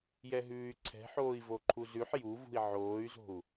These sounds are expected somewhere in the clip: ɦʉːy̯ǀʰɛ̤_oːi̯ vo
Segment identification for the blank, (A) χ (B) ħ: B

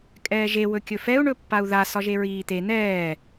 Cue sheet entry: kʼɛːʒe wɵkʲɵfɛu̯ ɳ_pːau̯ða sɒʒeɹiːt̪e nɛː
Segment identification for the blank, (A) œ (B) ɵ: B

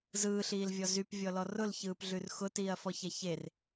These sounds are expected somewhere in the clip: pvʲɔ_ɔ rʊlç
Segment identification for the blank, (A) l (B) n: A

